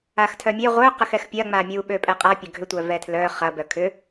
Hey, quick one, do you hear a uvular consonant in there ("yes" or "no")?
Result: yes